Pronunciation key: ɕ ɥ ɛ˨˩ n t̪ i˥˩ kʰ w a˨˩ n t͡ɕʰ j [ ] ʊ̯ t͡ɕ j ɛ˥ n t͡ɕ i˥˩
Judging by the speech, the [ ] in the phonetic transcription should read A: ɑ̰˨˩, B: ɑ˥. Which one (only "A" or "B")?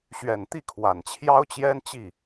B